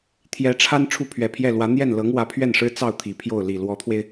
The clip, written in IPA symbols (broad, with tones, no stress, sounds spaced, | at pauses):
t̪ʰ j ɛ˧˥ ʈ͡ʂʰ a˥ n ʈ͡ʂʰ u˥˩ pʰ ɥ ɛ˨˩ pʰ j ɛ˥˩ l w ä˧˥ n̪ j ɛ˥˩ n l ɤ˧˥ ŋ w ä˧˥ pʰ ɥ ɛ˥˩ n ʂ ɻ̩˥ t͡s ɑ˥˩ ʊ̯ t̪ʰ i˨˩ pʰ j o˥˩ ʊ̯ l i˨˩ l w ɔ˧˥ t̪ʰ w e˧ ɪ̯